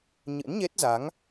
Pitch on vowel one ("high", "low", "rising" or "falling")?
rising